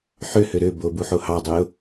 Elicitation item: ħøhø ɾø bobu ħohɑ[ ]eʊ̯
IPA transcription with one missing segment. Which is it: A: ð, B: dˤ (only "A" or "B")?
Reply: B